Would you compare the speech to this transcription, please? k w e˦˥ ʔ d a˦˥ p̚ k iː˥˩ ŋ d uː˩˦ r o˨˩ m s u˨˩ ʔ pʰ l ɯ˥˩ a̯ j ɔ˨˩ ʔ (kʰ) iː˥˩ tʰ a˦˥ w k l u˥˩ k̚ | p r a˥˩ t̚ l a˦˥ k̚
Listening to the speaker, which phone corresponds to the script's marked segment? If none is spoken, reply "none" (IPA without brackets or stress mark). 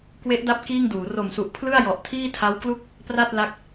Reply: tʰ